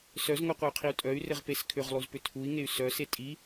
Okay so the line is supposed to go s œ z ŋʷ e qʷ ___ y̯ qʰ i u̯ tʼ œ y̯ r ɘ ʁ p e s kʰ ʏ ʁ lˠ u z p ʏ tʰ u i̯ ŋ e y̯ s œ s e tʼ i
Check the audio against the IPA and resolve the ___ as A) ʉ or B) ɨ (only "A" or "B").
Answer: B